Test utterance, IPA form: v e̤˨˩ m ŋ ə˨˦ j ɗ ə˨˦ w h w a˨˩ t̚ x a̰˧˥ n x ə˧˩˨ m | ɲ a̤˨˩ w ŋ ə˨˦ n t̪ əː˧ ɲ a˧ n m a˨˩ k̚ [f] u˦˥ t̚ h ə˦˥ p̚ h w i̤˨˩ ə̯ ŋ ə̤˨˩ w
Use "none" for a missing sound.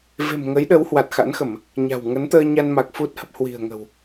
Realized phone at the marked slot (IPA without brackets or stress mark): f